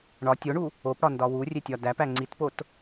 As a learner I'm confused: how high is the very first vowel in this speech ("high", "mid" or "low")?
low